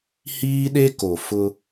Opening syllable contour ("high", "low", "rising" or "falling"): high